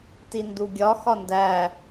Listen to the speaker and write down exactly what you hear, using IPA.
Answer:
t i n d u ɡʲ ɒ x ɒ n d æ

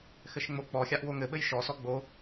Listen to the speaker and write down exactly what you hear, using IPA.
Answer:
x ɘ ʃ ŋ͡m o k͡p ɔ xʲ a ʔ w o ŋ ɘ ɓ ɘ j ʃ ɔ s ɔ ɡ͡b o

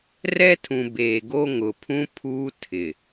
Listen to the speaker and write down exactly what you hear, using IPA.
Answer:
r ɛ˦ tʰ ũ˨ b eː˨ ɡ o˦ ŋ ʊ˨ pʰ ũ˦ pʰ uː˦ tʰ ɪ˨

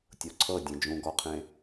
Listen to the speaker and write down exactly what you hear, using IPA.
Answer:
tʲ o ǀʰ ɤ dʲ ẽ d͡ʒ ũ ɡ ɔ qʰ ẽ

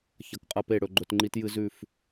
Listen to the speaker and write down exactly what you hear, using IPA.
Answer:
ç ɐ˨ k qʼ ɐ˧ p e˦˨ ɽ ɵ˧ ɡ͡ǃ ɵ˧ t ŋ͡ǃ i˦ t j ɨ˧ z ʉ˦˨ f

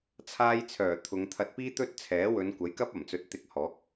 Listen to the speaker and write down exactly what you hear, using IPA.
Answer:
t͡sʰ aː˧ j t͡sʰ œː˨˩ t̪ʰ ʊ˨˧ ŋ t̪ʰ ɐ˧ t̚ p iː˥ t̪ ɵ˥ t̚ t͡sʰ ɛː˨˥ w ɵ˨˧ n kʷ ɐ˨˥ j k ɐ˥ p̚ ɐ˨˩ m t͡s ɵ˨ t̚ t̪ ɪ˧ k̚ h ɔː˨˥ k̚

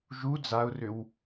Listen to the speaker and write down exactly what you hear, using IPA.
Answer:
ʒ u d͡z a ʊ̯ r ʏ w

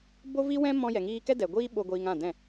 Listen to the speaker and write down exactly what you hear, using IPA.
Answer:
b o˦ v i˦ w ɛ̃˦ m ɔ̃˧ j ɛ˨ ŋ iː˧ k ɛ˦ d ɛ˨ ɡʷ iː˦ ɓ o˧ ɡʷ iː˧ ŋ ã˦˨ d ɛ̃˦˨

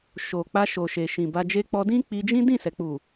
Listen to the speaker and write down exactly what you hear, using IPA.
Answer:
ʃ o˨ k͡p a˧ ʃ o˨ ʃ e˨ ʃ ĩ˨ b a˧ d͡ʒ e˧ k͡p ɔ˧ d ĩ˦ k͡p i˧ d͡ʒ ĩ˦ d ĩ˦˨ s ɛ˨ k͡p u˨

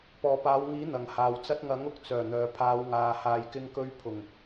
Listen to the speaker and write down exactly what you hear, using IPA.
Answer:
p ɔː˨˩ p aː˨˧ w ŋ iː˨˥ n̪ ɐ˨˩ ŋ h aː˨ w t͡s ɐ˥ t̚ ŋ ɐ˨˥ ŋ ʊ˨˥ k̚ t͡s œː˨˩ n̪ œː˨ pʰ aː˨˧ w ŋ aː˨ h aː˧ j k ɪ˥ ŋ k ɵ˥ ɥ pʰ ʊ˨˩ ŋ

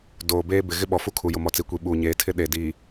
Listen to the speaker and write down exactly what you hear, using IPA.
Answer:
d oː˨ b eː˦ b ɪ˨ ɣ ɪ˦ ɓ ɔ˨ f u˦ kʰ u˨ j ʊ˨ m ɔ˨ t͡s i˨ kʷ i˨ ɓ uː˨ ɲ eː˨˦ tʰ ɪ˦ ɗ e˨ d iː˨

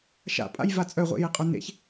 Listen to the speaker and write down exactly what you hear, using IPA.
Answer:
ʃ a̰ pʼ a̰ j v a t͡sʼ œ ʁʷ ḛ j e qʼ œ n ḛ ç

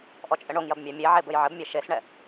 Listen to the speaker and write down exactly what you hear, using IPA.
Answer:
ʔ ɔ t͡ʃʼ ɘ ɳ o ŋ j ɐ b mʲ a mʲ e ʕ e b ɘ j ʕ ɘ b mʲ e ʃ e s ɳ ɛ

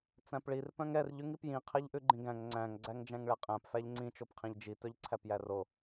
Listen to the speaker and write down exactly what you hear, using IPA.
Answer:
t͡s æ̃ p ɭ i r p œ̃ ŋ ɛ r ʎ ʉ ŋ i p j ĩ qʰ ɛ ʎ ʔ ʉ ɡ͡ǃ ĩ ɡ æ̃ ŋ ŋ͡ǀ æ̃ ŋ ɡ͡ǀ æ ŋ d͡ʒ æ̃ ŋ ɭ ɛ qʼ æ̃ p f æ ʎ ŋ͡ǀ ĩ t͡ʃ o p qʰ ĩ ʎ d͡ʒ i t œ ʎ ǀʰ æ p j æ r o

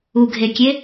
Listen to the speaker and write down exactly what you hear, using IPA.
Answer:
u ɡʱ e kʲ e

